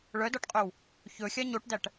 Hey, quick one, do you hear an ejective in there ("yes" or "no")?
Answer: yes